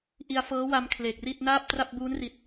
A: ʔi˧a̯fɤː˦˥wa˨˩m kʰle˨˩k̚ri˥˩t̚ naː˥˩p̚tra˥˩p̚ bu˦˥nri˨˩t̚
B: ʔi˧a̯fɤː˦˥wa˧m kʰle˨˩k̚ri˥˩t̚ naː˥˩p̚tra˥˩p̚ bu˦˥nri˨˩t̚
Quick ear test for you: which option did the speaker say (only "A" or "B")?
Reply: B